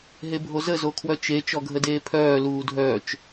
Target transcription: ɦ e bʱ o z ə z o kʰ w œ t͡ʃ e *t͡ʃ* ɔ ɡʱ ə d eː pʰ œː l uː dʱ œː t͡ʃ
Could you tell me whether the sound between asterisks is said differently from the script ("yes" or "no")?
no